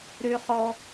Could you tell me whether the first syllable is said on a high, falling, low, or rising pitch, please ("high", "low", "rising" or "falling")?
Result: low